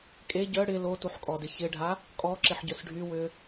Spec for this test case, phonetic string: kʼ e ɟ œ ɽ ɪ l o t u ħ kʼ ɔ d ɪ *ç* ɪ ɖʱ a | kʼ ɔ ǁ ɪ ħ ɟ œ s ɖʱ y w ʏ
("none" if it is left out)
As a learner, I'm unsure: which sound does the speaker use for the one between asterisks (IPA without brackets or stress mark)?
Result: ç